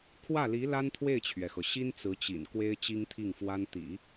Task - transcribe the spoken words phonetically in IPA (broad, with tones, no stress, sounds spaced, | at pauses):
kʰ w ä˥˩ l i˧˥ l a˥ n t̪ʰ w e˥˩ ɪ̯ t͡ɕʰ ɥ ɛ˩ x ɤ˩ ɕ i˥ n t͡s ɹ̩˧˥ t͡ɕ ḭ˨˩ n k w e˥ ɪ̯ t͡ɕ i˥ ŋ t̪ʰ i˥˩ ŋ f w a˥ n t̪ ḭ˨˩˦